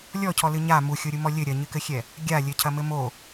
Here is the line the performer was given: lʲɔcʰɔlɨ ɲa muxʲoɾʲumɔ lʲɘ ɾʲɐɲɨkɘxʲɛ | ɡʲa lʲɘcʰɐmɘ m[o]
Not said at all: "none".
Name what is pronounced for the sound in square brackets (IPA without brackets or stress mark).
o